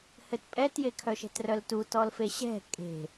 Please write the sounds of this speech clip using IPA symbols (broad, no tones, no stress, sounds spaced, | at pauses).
h ɘ t pʼ ɛ t j e kʰ œ ʃ ɛ̤ t r œ l t u t ɔ l f e ɕ ɛ̤ kʼ e̤